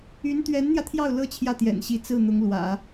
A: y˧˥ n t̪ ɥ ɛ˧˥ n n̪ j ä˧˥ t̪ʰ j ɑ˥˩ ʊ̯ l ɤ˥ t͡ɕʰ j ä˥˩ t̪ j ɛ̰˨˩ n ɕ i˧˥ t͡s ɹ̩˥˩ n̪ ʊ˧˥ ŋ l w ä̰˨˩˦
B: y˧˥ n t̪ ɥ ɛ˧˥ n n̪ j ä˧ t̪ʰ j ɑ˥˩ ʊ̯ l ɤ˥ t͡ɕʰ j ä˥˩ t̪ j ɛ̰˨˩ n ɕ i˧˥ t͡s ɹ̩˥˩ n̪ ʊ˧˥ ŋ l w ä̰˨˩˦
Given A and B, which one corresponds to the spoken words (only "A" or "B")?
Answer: B